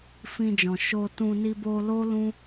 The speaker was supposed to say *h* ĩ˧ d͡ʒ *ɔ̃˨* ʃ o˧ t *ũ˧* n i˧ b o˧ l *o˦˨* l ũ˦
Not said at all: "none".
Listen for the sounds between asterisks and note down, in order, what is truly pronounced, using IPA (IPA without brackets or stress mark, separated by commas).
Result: f, ɔ̃˨, ũ˧, o˦